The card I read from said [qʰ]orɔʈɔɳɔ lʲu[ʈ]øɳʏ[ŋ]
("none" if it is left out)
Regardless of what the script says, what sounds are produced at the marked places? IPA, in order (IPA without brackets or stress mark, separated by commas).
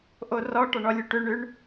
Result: ʔ, ʈ, ɳ